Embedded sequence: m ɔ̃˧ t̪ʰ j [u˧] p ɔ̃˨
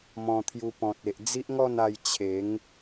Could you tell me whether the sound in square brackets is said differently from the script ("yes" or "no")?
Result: no